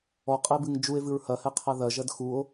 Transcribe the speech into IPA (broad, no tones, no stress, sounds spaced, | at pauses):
ɔ qʼ e b ɨ ŋ d͡ʒ u e̯ v ɨ ɹ h ɐ h ɛ qʰ a ð ɐ ʒ ɐ d x u o̯